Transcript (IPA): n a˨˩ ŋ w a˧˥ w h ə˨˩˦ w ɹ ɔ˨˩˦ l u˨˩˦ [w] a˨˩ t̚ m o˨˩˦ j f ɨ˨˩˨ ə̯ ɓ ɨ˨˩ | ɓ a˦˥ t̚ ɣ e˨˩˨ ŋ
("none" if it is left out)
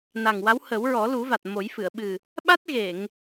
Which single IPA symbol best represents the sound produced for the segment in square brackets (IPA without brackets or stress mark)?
v